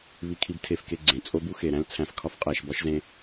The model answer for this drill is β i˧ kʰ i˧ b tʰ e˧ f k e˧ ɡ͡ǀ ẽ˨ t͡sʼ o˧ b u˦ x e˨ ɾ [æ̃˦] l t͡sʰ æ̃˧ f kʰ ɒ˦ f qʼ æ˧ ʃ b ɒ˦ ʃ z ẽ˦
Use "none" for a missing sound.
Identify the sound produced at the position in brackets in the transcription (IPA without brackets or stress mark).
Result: æ̃˦